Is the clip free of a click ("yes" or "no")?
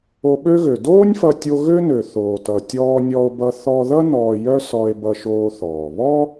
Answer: yes